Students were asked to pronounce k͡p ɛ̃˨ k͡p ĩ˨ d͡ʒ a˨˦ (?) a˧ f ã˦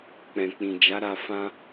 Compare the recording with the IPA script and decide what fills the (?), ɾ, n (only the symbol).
ɾ